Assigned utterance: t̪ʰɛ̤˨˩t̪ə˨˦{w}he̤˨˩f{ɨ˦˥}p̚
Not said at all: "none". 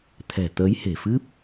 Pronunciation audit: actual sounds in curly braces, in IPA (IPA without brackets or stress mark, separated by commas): j, ɨ˦˥